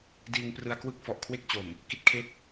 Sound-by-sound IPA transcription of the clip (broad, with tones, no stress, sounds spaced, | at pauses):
d iː˧ ŋ p r ɯ˧ a̯ k w ɯ˥˩ k̚ f ɔ˨˩ ʔ kʰ w e˥˩ k̚ t͡ɕ o˨˩ m | k i˥˩ t̚ kʰ e˦˥ k̚